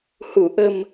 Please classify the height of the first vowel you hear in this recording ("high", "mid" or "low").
high